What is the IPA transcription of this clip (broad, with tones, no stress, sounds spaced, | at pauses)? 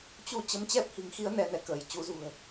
t͡ɕ u˧ t͡ɕ ə˨˦ m t͡ɕ ɛ˦˥ p̚ h i̤˨˩ ŋ x i˨˦ ə̯ n ɛ˧ n ɛ˨˦ k əː˧˩ j t͡ɕ u˨˦ z ṳ˨˩ ə̯